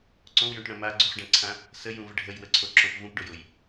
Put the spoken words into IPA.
ǀ õ w j õ ʈ ɽ ə̃ m a ɡ͡ǀ u χ ɖ ã ǀʰ ã | s ə j ũ v ə ɖʱ ə j w ə ǀʰ o ǁ õ p v ũ p ɖ o j o j

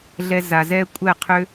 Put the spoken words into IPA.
ɮ ɛ˧ z a˨ z ɛː˦ kʷʼ ɛ˦˨ qʰ ʏ˧

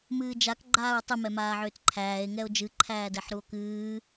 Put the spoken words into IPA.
m ɨː d͡ʒ a k ɡ͡ǃ aː ɹ tˤ ɨ m ɛ m aː ʕ ʏː t ǃʰ æː e̯ ŋ ɛ o̯ d͡ʒ ɨ ǃʰ æː d ɛ ħ ɾ u o̯ k ɨː

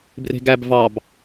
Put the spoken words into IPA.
b r e̤ ɡ æ b v ɑ b

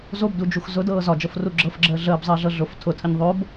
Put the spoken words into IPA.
z o b d u d͡ʒ u x z ʊ d ɤː z ɒ d͡ʒ ɤ f r u ɡ͡ǁ ɤ f ɡ͡ǁ əː ɮ əː b zˤ əː ɮ ɤ ɮ ʊ f tʰ ʊ tʰ ə ɲ ðˤ o b

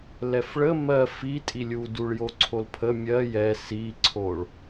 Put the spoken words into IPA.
l ɛ f ɭ ə m ɜ f i tʼ i lʲ u d u ɭ j o ǀʰ o l pʰ ə mʲ ɜ j ɛ s i ǀʰ o ɭ

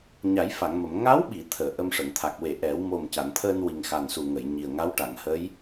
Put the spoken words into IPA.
ɲ a˨˩˦ j f a˨˩˨ ŋ m ə˨˩˨ m ŋ a˧˥ w ɓ i˨˩˨ t̪ʰ əː˨˩˨ ʔ ə˧ m ʂ ə˨˩˨ ŋ t̪ʰ a˨˩ k̚ w e˨˩˨ ʔ ɛ˨˩˦ w m o˨˩ m c a˨˩˨ n t̪ʰ əː˧ n w i˨˩ ŋ x a˨˩ n s u˨˩ ŋ ə˨˩˨ j ɲ i˨˩ ə̯ ŋ a˧˥ w ʈ a˨˩˨ ŋ h əː˧˥ j

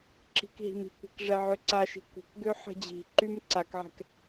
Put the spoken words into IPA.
ǁ i̤ k ɦ i̤ m i̤ kʷ ɛ̤ k ʐ ɛ ʕ ø ǀ a ʃ i̤ kʷ ə̤ k ɡ ø ħ ə̤ d͡ʑ i̤ ǃ y m ǀ a k ʕ ɛ̤ k

